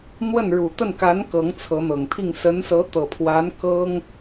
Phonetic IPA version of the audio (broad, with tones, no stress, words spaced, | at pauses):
n̪wə˥˩n ɻu˨˩t̪ə˥˩nka˧˥n kɤ˧˥ŋt͡sʰɤ˧˥n̪ɤ˨˩ŋt̪ʰi˥˩ŋ sə˧˥nsɤ˧˥t̪ɤ˨˩pʰwa˧˥n kɤ˥ŋ